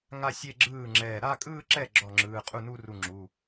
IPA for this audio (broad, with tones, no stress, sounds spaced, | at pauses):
ŋ a˥˧ sʲ e˥˧ ɡ͡ǁ ɯː˥˩ ŋ͡ǁ ɛː˧˩ ɾ a˥˧ kʼ ɯː˥˧ ǁ ɛ˥˩ ɡ͡ǁ ɔ˥˩ ŋ͡ǁ ɯː˩˧˩ qʼ u˥˩ n u˥˧ r u˧˩ ŋ͡ǁ u˩˧˩